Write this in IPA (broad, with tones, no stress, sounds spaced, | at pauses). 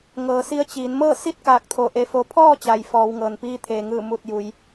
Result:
ŋ ɤː˩˧ s i˧ ə̯ t͡ɕ iː˩˧ n m ɤː˥˨ s i˥˨ t̚ k aː˧˩ k̚ t̪ʰ o˧˩ ʔ e˧ f o˧ pʰ ɔː˥˨ t͡ɕ a˩ j f ɔː˩˧ w ŋ ɤː˩ n p iː˧ t̪ʰ eː˩ ŋ ɯː˧˩ m u˧˩ t̚ j u˩ j